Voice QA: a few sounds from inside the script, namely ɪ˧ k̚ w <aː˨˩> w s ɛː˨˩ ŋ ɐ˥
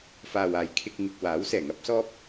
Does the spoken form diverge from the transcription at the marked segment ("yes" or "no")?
yes